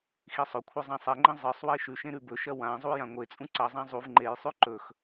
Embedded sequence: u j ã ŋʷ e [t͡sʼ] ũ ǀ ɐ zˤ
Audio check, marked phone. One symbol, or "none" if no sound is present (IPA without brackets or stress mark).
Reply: t͡sʼ